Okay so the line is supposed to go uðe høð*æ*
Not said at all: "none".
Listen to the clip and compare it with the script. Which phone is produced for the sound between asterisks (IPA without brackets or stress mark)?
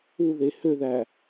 æ